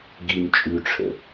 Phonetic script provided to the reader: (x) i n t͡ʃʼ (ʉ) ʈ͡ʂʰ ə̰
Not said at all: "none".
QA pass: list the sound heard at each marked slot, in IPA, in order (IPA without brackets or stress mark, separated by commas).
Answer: ɡ, ʉ